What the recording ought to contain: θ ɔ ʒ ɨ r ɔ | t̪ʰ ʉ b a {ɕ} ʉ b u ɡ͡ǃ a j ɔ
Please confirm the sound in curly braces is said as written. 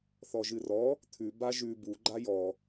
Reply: no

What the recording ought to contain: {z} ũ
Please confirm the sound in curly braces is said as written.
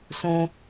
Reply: no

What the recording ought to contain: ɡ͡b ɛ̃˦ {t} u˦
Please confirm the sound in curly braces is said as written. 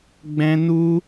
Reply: no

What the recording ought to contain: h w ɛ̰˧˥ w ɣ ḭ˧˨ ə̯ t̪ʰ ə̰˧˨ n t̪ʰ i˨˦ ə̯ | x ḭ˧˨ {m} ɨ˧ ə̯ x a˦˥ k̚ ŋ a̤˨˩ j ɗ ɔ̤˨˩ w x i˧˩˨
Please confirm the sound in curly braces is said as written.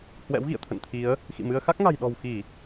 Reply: yes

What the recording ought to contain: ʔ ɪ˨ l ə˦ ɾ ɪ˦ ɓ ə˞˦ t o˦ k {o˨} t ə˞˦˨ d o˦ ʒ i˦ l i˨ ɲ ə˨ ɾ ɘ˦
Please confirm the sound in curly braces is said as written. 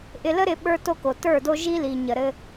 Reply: yes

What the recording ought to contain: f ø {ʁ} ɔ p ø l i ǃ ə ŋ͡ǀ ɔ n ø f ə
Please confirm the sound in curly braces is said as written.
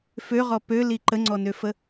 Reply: yes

